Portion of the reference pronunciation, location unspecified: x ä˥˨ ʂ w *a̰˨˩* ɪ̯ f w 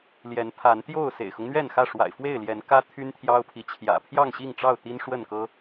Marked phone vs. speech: correct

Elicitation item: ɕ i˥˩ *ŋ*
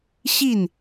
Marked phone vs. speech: incorrect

